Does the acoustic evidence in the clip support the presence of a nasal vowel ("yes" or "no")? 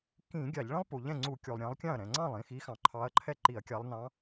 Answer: yes